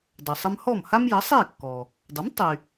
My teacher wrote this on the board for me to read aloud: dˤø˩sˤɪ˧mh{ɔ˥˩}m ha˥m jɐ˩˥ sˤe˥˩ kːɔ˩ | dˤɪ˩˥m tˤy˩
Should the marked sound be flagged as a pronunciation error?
no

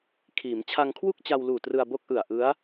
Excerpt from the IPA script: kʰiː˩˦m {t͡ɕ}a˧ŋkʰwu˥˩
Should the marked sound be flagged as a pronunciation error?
yes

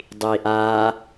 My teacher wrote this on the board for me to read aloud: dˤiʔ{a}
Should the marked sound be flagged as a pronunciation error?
no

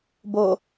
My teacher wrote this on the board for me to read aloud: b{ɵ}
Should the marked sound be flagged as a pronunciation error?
yes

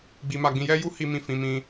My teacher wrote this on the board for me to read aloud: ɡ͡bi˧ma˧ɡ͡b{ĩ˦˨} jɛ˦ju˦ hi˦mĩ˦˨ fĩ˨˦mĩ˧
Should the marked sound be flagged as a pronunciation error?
yes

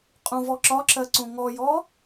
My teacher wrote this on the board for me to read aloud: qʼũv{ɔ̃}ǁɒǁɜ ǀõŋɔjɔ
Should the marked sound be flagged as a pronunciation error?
yes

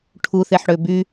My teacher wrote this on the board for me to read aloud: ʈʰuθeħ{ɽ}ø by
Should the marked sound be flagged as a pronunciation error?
no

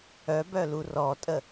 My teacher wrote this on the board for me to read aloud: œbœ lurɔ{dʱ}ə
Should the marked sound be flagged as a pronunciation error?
yes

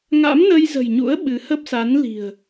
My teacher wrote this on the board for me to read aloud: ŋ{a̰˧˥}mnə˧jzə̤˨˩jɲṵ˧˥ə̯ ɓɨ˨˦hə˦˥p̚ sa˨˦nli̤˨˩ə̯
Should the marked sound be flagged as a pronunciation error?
no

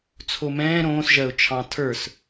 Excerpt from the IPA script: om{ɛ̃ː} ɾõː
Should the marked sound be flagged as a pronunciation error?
no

